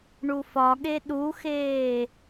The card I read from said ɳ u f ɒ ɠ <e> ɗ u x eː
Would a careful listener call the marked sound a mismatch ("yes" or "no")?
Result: no